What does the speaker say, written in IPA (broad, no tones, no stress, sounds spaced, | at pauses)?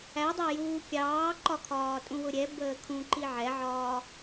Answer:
æ dˤ æ j uː kʲ ɑː ǃ ɒ kʰ ɒː tʼ ũ w ʊ ɾʲ ɛ b əː kʰ ũ ǃ i ʕ ɛ ʕ ɒː